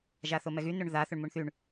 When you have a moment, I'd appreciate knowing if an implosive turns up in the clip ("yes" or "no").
no